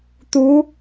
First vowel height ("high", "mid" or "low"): high